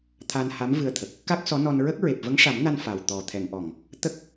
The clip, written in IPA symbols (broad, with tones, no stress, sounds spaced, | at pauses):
t̪ʰ a˧ n h a˧˥ m v ɨ˧ ə̯ t̪ʰ ə˨˩ k̚ | k a˦˥ k̚ s ɔ˧˥ n ɔ˧ n ɹ ə˦˥ k̚ ɹ e˨˩ p̚ v ə˧˥ ŋ ʂ a˨˩˦ m n a˧ n f a˨˩ w t̪ ɔ˨˩ t̪ʰ ɛ˨˩˨ ŋ ʔ ɔ˨˩˨ ŋ | t̪ ə˦˥ k̚